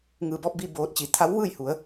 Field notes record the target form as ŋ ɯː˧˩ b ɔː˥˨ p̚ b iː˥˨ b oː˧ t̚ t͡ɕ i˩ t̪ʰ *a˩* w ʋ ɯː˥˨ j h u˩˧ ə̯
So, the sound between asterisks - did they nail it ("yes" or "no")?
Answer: no